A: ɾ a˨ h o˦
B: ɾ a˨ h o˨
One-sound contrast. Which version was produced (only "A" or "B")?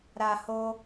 A